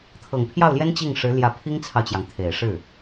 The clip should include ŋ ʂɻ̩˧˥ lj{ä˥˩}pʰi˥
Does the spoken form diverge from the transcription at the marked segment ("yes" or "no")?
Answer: yes